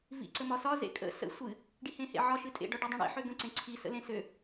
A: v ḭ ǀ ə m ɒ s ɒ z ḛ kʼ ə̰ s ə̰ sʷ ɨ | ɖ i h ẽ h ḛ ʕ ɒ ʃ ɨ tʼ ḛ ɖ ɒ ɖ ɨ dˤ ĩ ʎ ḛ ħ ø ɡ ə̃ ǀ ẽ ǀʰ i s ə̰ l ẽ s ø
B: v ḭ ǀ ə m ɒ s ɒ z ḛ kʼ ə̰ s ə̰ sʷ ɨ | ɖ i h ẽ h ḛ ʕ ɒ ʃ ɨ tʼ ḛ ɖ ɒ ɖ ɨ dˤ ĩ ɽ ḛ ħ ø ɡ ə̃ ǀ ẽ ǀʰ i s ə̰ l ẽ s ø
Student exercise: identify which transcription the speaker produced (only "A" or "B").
B